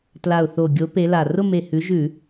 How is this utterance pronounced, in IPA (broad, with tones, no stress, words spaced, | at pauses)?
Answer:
tla˨˩ʊ̯θo˨˩ɡʲo˨˦ pe˨˦la˨˩ rʊ˥˧me˨˩ hʉ˨˦ʒʉ˧˩˧